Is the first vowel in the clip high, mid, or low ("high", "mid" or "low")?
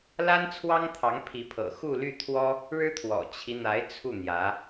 low